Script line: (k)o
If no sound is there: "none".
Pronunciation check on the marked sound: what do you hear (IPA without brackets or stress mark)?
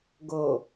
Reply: ɡ